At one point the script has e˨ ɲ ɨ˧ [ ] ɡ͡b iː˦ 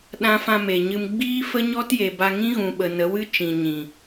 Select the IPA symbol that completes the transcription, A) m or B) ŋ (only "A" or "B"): A